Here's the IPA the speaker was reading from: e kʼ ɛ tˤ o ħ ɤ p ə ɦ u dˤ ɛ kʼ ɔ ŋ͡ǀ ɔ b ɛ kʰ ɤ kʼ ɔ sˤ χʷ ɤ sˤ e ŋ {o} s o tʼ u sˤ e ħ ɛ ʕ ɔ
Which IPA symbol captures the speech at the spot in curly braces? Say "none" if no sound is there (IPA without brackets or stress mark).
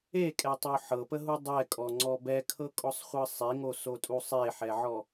o